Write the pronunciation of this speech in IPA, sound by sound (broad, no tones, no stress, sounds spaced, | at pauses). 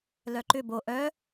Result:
l œ ǃ ʏ b o ʔ œ